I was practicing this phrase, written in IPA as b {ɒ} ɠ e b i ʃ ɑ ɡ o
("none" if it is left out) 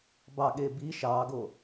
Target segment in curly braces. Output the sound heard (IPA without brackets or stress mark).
ɑ